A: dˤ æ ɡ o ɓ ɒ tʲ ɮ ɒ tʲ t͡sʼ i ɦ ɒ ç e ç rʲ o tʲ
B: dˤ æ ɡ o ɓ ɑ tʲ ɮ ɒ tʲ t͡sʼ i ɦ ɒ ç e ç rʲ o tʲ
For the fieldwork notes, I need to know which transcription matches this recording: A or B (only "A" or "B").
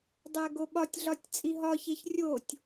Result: A